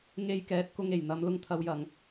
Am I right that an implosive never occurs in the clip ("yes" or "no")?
yes